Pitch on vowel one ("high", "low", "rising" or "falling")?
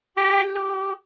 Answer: high